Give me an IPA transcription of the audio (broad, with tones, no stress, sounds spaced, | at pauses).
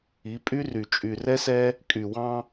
i˨˦ pʼ y˦ r y˨ t͡ʃʼ y˨ r ɛ˦ s ɛ˦ | kʼ y˨ w ɑ̃˦